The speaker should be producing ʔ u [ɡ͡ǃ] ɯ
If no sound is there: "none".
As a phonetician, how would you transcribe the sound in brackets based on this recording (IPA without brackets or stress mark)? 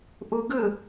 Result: ɡ